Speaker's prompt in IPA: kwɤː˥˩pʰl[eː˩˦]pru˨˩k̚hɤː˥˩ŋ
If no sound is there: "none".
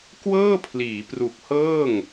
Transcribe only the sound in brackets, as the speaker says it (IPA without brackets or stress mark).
iː˩˦